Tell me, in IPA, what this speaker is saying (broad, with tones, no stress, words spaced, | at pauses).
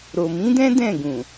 ɾo˨mĩ˨˦dɛ̃˦ dɛ̃˦˨ɡũ˨